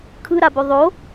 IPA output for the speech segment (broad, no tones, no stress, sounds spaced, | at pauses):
kʰ ɯ ɾ a b o ðˤ o